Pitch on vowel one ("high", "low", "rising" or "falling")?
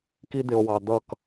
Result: high